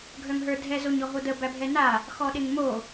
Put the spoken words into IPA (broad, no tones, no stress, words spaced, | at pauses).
ɡʱœŋɦə˞dʱɛ zoɲɔɦodə bæbʱɛna | xɔɗeŋmo